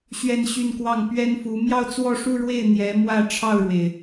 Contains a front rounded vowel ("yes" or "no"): yes